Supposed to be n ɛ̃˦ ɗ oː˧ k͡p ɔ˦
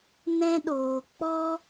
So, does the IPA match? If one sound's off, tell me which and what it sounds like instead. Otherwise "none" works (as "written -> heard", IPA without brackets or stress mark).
none